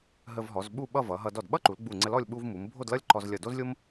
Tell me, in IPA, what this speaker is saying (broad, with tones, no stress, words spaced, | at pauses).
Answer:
ɦə˧vɦɔ˩˧z ɓu˥˧ɓʌ˥˧vʌ˩˧ɦʌ˧ dɔ˧˩dɓʌ˥ǃu˩˧l ɡ͡bu˧˩ŋ͡ǀə˧lɔ˥˧lʲ ɓu˥v mu˩˧m bʱo˥˧dlʌ˥lʲ ǃɔ˧z lʲʌ˧˩do˥zlʲo˥m